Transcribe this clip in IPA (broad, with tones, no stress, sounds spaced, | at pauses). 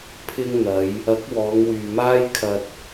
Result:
pʰ ɪ˧ ŋ n̪ ɐ˨˧ j | ɐ˨˥ k̚ w ɔː˨˧ ŋ w yː˨ m aː˥ j kʰ ɐ˧ t̚